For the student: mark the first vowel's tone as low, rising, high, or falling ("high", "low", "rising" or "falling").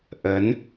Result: rising